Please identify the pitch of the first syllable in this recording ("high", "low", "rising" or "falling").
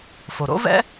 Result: low